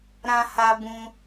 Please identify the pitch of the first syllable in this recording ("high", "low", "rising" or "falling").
high